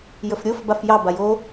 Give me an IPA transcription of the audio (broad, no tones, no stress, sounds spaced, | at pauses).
j ə f ɾʲ o f b a f j ɑ b a j o